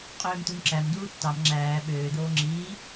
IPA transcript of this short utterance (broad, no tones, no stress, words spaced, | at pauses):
qʼøːmt̪unǁæm duːtːɑm ŋ͡ǁæː ɓøː d̪oːŋ͡ǁiː